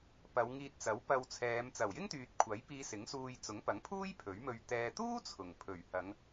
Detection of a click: absent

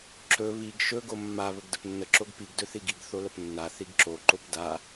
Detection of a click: present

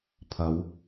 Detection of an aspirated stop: present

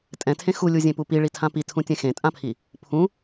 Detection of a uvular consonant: absent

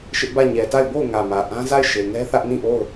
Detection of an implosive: absent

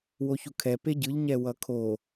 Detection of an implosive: absent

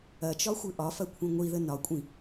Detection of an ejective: present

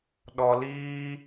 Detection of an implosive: present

